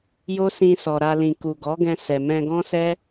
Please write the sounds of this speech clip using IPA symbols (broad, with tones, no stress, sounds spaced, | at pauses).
j o˦ s ĩ˧ s ɔ˨ ɾ a˧ l ĩ˨ k u˨ ɡ ɔ˨˦ ɡ ɛ̃˧ s ɛ˨ m ɛ̃˧ ɡ ɔ̃˦ s ɛ˦